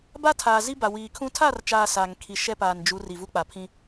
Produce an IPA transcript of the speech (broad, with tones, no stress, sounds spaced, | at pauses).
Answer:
b a˦ tʰ aː˨ z i˦ b a˨ w iː˨ kʰ ũ˦ tʰ a˦˨ r t͡ʃ aː˨ s aː˨ ŋ kʰ i˨ ʃ ɛ˦ p aː˨ n d͡ʒ u˨˦ r i˨ v u˦ k͡p a˨ pʰ ĩ˦